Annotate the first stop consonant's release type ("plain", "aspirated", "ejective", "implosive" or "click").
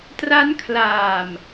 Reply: plain